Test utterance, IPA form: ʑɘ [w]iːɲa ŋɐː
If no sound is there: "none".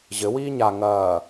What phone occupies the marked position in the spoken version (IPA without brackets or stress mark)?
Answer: w